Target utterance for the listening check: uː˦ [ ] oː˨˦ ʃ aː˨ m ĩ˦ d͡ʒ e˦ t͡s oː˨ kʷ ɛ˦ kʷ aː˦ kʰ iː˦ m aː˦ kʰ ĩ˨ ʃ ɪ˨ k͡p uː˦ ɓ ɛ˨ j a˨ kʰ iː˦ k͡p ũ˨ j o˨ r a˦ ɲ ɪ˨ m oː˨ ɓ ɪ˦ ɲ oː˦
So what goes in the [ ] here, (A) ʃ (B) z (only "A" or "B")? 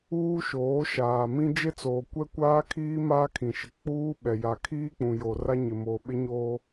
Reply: A